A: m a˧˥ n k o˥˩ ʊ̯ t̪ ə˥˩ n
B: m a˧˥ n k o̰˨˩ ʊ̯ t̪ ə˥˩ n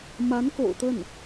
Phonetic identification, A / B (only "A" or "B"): B